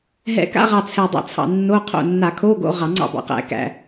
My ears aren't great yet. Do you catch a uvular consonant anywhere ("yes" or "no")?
yes